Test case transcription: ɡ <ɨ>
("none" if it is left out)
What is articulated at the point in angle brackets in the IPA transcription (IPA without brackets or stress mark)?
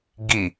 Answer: i